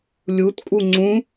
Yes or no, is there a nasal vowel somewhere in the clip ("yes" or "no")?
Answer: yes